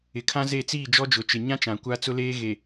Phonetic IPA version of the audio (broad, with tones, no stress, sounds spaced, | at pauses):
ɪ˨ kʰ ã˦ z e˦˨ t͡s iː˦˨ d͡ʒ ɔ˦ d͡ʒ ʊ˨ t͡ʃ ɪ˨ ɲ ã˦ t͡ʃ ã˨ kʷ a˦ t͡s ʊ˦ l eː˦ ɣ e˨